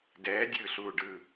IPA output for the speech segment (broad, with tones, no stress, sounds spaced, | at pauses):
d ɛː˨˥ dʲ ɯː˥˩ ɬ uː˥˩ ɖ ɯː˥˩